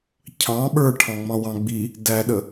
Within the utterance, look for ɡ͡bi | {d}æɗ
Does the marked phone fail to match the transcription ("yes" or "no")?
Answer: no